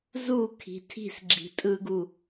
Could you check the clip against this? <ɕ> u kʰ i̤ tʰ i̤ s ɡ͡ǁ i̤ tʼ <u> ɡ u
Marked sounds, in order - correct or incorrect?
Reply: incorrect, incorrect

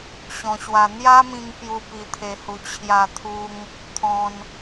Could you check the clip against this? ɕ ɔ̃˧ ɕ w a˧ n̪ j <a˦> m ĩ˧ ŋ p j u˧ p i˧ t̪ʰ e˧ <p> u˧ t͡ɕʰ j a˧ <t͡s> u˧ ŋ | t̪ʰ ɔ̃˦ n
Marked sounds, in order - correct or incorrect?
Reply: correct, incorrect, incorrect

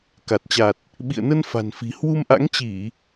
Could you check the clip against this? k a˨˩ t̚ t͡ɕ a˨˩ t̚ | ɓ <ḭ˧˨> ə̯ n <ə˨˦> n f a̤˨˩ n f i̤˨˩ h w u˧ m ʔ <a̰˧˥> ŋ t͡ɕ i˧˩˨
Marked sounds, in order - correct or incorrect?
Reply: correct, incorrect, correct

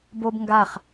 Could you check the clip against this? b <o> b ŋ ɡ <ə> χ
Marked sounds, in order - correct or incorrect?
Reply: correct, incorrect

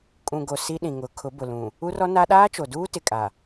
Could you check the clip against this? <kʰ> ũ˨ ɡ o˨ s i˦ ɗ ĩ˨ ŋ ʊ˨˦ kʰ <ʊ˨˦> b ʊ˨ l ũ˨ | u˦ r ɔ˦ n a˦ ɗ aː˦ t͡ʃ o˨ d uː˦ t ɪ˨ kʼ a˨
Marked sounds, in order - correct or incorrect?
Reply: incorrect, correct

